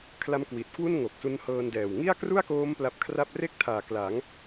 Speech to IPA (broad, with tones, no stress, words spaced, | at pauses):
kʰla˦˥mkwi˨˩t̚kwu˥˩n ŋo˨˩k̚su˦˥nhɤː˧ndɛː˨˩w ŋi˥˩a̯kru˥˩a̯koː˦˥m pla˦˥p̚kʰra˥˩p̚ re˥˩k̚tʰaː˨˩ kla˩˦ŋ